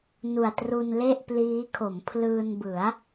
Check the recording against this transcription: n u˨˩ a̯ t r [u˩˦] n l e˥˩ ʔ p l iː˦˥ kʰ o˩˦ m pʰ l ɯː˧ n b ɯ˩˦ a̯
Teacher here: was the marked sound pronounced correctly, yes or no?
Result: no